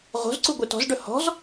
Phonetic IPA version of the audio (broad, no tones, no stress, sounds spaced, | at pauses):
ʁ o̤ z ǀ u ɡʷ e t ɔ̤ z ɖ ɵ h ɔ̤ z